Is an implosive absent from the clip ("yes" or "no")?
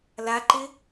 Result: yes